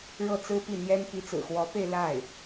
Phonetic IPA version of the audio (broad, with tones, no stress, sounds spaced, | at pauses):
ɻ ɤ˥˩ t͡s ɹ̩˥ p i˥˩ n̪ j ɛ˥ n p i˧˥ t͡s ɹ̩˨˩ x w ɔ˧˥ p e˥˧ ɪ̯ l a˥˩ ɪ̯